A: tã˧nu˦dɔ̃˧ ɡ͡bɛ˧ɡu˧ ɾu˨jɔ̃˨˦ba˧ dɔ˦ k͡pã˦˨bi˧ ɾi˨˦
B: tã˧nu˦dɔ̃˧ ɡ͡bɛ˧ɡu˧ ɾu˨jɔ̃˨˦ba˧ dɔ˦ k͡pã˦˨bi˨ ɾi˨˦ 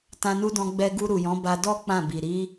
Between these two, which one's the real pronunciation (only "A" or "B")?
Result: B